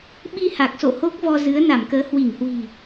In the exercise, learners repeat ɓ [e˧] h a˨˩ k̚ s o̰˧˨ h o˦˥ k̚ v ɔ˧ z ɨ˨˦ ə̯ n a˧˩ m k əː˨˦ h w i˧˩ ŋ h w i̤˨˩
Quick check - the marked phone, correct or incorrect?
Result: incorrect